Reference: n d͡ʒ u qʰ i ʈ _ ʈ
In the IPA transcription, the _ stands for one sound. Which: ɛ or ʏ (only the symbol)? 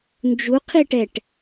ɛ